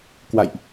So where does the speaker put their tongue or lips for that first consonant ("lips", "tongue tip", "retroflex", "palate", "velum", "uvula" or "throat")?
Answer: velum